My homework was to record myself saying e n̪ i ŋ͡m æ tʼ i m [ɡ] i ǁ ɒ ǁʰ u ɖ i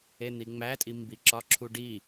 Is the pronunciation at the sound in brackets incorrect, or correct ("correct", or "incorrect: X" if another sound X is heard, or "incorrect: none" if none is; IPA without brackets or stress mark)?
incorrect: b